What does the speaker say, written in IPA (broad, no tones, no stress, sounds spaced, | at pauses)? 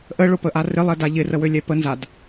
ʔ ə ɭ ʊ p ə ʔ a r ɪ lˠ ɛ d a ʎ ɪ r ə w ø lʲ ɛ p ə n z a d